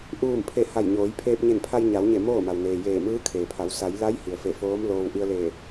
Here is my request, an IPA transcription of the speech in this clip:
ʔuː˧˩mpʰe˧˩ ha˧˩jɲoː˩˧j pʰeː˧p̚ɲe˧˩npʰa˧j ɲa˩˧wɲe˧˩ moː˥˨ma˩wneː˩ jeː˧˩mɯː˧˥ kʰeː˩pʰa˩˧w sa˩˧jla˧˥j hi˩ə̯fe˧˩foː˧˥m loː˧w ʔi˧ə̯leː˧˩

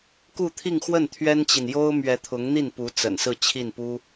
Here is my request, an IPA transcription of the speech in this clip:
ku˥˧t̪ʰi˥˧ŋxwə˥˩n t̪ʰɥɛ˥nt͡ɕi˨n jo˥ʊ̯mɥɛ˧˥t̪ʰʊ˧˥ŋ n̪i˥˩npu˧˥ t͡sə̰˨˩nsɹ̩˥˧t͡ɕʰi˥˩n pu˥

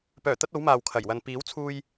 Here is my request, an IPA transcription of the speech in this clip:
pœː˨˩t̪ɐ˧t̚ o˨˥wmaː˨wkʰɐ˨˩jwɐ˨n piː˨˥wt͡sʰuː˧j

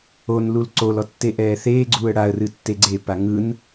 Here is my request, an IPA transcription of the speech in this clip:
onlul ǀolɔ tːeʔɛːθeːɡ͡ǀuːə̯ ɽaə̯rɨ tːeɡ͡ǀepa ŋɯn

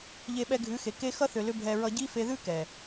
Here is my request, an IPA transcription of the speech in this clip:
ʎe˧ɓɛ˧ɡʱʉ˨˦xe˨ ke˧ xʌ˦θʏ˨lʏ˧ bʱɛ˧ ɹʌ˧ɟi˦ fe˧ðʉ˦kɛ˨

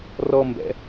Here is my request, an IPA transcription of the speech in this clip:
rɔ mbɛ̰

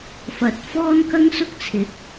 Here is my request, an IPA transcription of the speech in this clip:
fɐ˧t̚ fɔː˥nkɐ˥ŋsʊ˥k̚t͡sʰɪ˨˥k̚

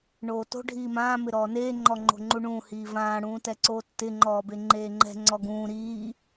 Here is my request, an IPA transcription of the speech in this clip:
ɳoːto̤ ɖʱiːmãː mɪɾɔːneː ŋ͡ǃɔŋ͡ǃo̤ŋ͡ǃuɳũː hiːvãː ɽũːtɛǀoːtːɪ ŋ͡ǃɔːbeŋ͡ǃeːŋ͡ǃɛ̤ ŋ͡ǀɔɡũː ɾiː

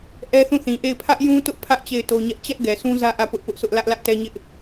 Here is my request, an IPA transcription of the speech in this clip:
ʔɛ˦θũ˦˨θĩ˨ʔe˦˨ɪ̯ pʰä˦ʔjũ˦tʊ˦ʔ pʰä˦ʔ t͡ɕe˦˨ɪ̯to˦ɲɛ˦ʔ t͡ɕɛ˦ʔ ɡɛ˨sʰũ˦ zä˦ ʔä˦˨pʊ˦ʔpʊ˦ʔsʊ˦ʔ lä˦ʔ lä˦ʔtɛ˦ɲɪ˦ʔ

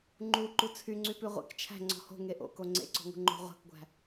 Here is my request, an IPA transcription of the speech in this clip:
ŋ͡ǃu ǃut͡sʰyŋ͡ǀypʉ ʁʷḛk t͡ʃʰæ̤ ŋ͡ǀɔ̤ho̤ ŋeʔo̰ko ŋ͡ǀḛǀɔ̤ ŋṳŋ͡ǃo̤ ʁʷæ̤kɡʷæ̤

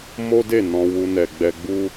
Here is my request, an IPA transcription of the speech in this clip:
mo˦de˦˨ nɔ̃˧ wu˧nɛ˨ɡ͡bɛ˧ɡ͡bu˦

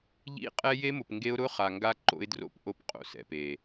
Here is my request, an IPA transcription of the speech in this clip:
ʎḭ˦qʼɛ˦ je˦mʊ˨pŋɡe˦ʊ̯ ɾʊ˦χa˨ŋɡa˦ ǃo̰˦ɪ̯dro̰˦˨pʔo˦p qʼo̰˨sɛ̰˨pe˨

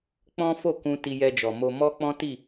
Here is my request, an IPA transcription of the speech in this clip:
k͡pɔ̃˦fo˦˨kũ˧ ti˧jɛ˧d͡ʒɔ˨mo˧ mɔ˦k͡pɔ̃˦ti˦˨

